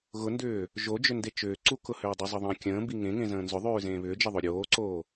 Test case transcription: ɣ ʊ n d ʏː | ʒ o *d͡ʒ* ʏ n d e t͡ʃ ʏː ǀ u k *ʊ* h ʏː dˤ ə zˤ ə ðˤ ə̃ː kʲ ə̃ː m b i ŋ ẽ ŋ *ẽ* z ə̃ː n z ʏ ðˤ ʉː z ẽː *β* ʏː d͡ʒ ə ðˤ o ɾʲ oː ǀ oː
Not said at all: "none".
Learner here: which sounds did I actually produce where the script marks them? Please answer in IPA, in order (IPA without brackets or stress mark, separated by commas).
d͡ʒ, ʊ, ẽ, β